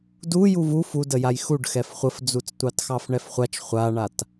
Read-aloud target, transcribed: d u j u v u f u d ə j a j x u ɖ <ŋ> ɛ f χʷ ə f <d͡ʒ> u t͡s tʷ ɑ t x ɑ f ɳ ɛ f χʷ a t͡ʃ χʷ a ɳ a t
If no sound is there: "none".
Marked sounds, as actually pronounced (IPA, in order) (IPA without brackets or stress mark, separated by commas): x, d͡z